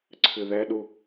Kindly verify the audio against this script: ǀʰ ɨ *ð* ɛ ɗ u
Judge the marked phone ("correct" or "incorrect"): correct